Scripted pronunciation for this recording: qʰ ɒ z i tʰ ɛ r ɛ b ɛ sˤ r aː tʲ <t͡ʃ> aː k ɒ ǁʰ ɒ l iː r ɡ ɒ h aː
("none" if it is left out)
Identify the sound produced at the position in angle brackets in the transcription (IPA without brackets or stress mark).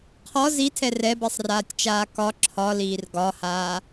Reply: t͡ʃ